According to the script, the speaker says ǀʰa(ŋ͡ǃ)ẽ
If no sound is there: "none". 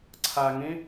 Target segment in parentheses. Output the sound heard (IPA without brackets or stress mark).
ŋ